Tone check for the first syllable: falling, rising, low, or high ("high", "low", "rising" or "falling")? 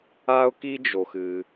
high